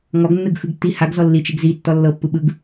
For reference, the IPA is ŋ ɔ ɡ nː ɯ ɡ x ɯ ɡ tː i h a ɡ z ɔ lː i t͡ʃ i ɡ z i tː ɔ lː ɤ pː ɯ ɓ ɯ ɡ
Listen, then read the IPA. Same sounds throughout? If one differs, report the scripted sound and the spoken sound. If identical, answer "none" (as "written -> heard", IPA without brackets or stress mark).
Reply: none